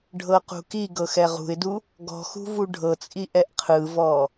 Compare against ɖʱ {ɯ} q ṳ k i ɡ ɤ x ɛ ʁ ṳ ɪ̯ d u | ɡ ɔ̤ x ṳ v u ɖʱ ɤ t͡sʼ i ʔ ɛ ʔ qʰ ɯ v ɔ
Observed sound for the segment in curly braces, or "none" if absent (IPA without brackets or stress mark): ɤ